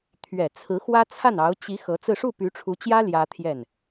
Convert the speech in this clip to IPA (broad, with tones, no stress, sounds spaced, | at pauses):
t̪ʰ ɥ ɛ˨˩ t͡sʰ ɹ̩˧˥ x w ä˥ t͡sʰ a˥˩ n ɑ˧˥ ʊ̯ t͡ɕ i˧˥ x ɤ˧˥ t͡s ɹ̩˥˧ ʂ u˥˩ p y˧˥ ʈ͡ʂʰ u˧˥ t͡ɕ j ä˥ l j ä˥ t̪ʰ j ɛ˥˩ n